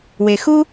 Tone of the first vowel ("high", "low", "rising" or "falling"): low